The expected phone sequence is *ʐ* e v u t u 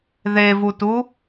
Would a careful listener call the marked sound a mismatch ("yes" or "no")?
yes